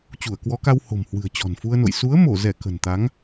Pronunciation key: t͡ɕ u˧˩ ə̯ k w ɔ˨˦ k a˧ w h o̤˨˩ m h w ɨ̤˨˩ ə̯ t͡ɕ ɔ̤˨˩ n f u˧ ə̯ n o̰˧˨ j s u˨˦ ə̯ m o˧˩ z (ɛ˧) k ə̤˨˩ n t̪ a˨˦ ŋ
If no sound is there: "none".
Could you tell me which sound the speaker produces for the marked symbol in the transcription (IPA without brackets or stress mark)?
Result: ɛ˧˩